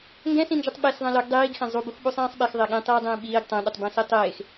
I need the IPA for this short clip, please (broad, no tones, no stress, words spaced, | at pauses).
ŋɡɛ̃sĩnd͡ʒutˤ ɓes ðˤɛ̃lɵɡ dˤiːɡxɛ̃ zˤubux ɓusˤĩːsˤɓexðˤe ɠĩtˤiːdˤĩː ɓiːɡ tˤɛ̃ɗutˤ bɛ̃sitˤeːx